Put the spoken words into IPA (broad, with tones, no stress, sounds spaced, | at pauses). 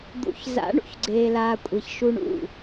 d̪ ṵ˨ ç z a̰˨˦ ɳ ṵ˨ ç ɡ͡ǀ eː˨ l aː˨ kʷʼ e˨ ç ʃ u˦ ɳ ṵ˦˨